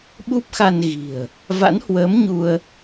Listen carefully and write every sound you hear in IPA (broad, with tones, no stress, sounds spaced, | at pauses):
ɓ u˦˥ p̚ x a˧ n ɣ i̤˨˩ ə̯ | v a̰˧˥ n h w əː˨˦ m ɲ u˧ ə̯